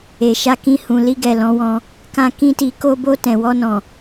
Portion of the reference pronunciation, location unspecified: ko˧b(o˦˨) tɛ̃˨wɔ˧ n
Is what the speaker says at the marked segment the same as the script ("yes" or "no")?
no